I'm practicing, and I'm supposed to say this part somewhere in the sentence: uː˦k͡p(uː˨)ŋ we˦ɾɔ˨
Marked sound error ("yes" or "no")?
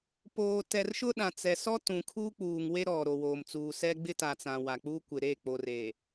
no